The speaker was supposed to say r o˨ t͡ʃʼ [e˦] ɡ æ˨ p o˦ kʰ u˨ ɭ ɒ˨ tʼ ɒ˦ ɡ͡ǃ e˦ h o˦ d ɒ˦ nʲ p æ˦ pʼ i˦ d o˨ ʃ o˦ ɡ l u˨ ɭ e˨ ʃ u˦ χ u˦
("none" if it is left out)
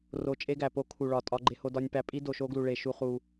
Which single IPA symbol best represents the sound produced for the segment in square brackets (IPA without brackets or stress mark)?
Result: e˦